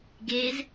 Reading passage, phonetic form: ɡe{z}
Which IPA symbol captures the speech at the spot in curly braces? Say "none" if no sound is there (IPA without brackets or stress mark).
z